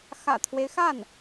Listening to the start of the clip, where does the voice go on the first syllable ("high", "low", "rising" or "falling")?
low